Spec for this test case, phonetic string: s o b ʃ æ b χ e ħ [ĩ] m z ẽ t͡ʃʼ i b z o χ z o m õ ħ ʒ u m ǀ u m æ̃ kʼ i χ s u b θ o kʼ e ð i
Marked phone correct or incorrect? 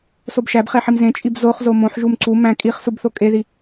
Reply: incorrect